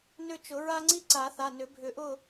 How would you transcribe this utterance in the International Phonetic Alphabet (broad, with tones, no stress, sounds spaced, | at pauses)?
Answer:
n ʏ˦˨ t͡ʃ ʊ˨˩˦ ɹ a˦ ŋ͡ǀ i˦ ǀ a˨˩˦ θ a˩˧˩ n ʏ˨˩˦ bʱ ʏ˨˩˦ ʔ ʊ˦˨